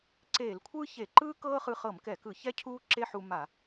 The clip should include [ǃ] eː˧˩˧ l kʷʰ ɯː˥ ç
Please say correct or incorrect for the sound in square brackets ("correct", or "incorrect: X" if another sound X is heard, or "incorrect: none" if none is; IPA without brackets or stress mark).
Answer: incorrect: ǀ